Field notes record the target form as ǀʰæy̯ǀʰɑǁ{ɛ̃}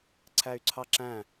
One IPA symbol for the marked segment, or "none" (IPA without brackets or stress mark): æ̃